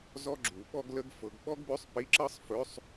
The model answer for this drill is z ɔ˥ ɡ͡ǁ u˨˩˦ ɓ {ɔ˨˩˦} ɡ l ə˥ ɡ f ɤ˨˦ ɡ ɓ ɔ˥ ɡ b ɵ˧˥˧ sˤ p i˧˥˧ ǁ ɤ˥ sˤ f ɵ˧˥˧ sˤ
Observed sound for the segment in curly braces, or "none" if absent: ɔ˥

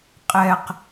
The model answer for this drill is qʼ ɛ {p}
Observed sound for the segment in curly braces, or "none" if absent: q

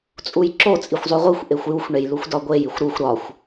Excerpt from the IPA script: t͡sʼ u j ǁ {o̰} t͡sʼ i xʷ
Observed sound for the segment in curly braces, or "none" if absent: o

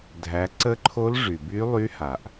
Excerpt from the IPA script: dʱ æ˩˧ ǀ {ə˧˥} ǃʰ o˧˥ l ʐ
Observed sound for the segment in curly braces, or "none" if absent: ə˧˥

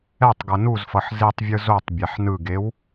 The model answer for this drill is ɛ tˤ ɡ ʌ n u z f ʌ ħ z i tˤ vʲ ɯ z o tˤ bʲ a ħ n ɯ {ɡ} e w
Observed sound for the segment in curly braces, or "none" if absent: ɡ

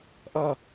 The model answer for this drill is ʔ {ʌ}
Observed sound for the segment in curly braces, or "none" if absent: ʌ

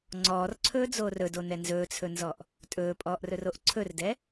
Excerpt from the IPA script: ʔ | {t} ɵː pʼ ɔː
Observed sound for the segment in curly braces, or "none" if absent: tʼ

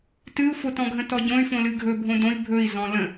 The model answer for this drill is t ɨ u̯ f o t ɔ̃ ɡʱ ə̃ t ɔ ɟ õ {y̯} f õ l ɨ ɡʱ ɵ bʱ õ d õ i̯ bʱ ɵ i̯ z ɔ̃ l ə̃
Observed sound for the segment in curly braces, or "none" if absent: y̯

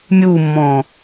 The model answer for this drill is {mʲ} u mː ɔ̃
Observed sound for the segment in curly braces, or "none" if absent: mʲ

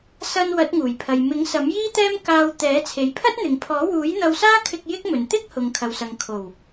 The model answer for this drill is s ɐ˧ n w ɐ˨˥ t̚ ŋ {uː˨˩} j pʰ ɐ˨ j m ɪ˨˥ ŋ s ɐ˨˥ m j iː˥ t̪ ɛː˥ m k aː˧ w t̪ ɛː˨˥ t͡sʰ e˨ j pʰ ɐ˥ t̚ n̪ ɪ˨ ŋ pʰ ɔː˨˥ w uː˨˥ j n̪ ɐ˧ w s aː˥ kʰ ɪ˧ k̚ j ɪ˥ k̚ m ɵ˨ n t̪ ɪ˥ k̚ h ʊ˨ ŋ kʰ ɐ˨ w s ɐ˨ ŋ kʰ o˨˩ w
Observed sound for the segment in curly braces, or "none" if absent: uː˨˩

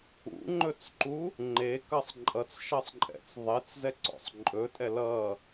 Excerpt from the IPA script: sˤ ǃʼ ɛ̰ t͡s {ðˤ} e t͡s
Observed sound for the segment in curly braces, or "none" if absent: ðˤ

